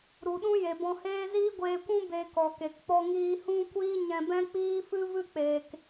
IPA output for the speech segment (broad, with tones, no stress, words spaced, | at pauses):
ɾu˨ɗũ˦ je˨bɔ̃˧heː˦ ziː˦ɡʷeː˧kʷũ˦ be˧kɔ˨ke˨k k͡pɔ˧ŋiː˧hũ˦kʷiː˦ ɲɛ̃˧bɛ̃˦k͡piː˦fɨ˦ vɨ˦k͡peː˨k